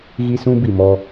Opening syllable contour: high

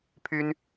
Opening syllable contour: high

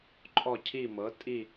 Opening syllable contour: falling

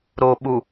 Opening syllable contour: low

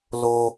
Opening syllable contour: high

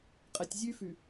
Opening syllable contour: low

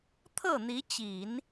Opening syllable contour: falling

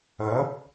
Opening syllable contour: rising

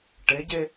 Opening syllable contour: rising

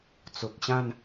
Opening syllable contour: low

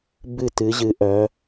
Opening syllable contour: falling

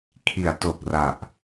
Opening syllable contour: low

